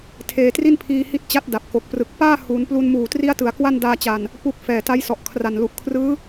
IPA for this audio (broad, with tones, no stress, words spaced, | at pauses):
tʰeː˧tri˥˩npʰiː˧ hi˦˥t̚t͡ɕa˦˥t̚ da˨˩p̚ko˨˩k̚prɯ˨˩k̚ paː˥˩ huː˩˦nplu˧n muː˨˩tri˦˥a̯tɯ˩˦a̯ kwa˥˩ndaː˧t͡ɕa˨˩n | pu˥˩k̚ fɛː˨˩ ta˦˥jsɔ˨˩ʔkʰra˨˩n lu˨˩ʔkʰrɯː˦˥